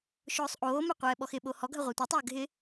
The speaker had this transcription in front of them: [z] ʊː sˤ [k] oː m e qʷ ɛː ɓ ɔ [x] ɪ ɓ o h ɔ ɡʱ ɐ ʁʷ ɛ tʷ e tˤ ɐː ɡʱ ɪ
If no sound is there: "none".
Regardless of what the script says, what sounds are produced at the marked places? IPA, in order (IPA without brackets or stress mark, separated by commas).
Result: ʃ, ʔ, x